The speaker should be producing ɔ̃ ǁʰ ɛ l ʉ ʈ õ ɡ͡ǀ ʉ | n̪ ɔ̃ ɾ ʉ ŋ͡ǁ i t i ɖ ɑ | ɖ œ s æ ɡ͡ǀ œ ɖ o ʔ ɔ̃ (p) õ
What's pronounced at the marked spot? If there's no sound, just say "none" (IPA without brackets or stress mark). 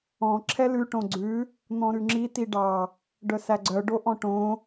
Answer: ʈ